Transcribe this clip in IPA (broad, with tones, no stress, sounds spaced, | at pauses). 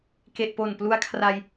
k e˨˩ ʔ p o˨˩ n p l u˦˥ a̯ kʰ r a˧ j